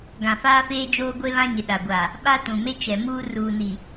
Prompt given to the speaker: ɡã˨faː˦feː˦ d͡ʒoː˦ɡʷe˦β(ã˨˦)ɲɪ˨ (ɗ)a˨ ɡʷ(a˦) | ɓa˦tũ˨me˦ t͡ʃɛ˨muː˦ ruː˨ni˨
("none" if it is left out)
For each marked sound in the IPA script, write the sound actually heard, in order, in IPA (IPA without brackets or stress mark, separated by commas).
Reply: ã˦, ɗ, a˨